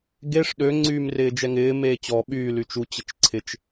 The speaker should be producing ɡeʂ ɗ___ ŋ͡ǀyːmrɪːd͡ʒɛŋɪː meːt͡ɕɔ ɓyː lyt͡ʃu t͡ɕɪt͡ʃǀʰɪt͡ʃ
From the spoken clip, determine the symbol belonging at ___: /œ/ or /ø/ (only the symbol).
ø